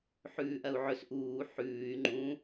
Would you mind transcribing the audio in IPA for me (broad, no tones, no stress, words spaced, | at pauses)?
ħʉːʔɐu̯ʕɵs ʔuː ħʉːy̯ ŋ͡ǃũ